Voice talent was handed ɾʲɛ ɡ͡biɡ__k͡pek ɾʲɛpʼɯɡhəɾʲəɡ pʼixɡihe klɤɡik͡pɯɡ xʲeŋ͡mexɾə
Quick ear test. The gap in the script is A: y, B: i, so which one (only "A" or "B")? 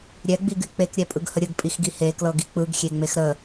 A